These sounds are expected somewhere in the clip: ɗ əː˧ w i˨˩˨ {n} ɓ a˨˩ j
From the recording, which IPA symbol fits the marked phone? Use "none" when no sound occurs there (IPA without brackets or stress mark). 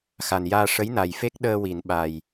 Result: n